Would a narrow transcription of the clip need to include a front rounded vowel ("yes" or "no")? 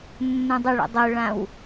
yes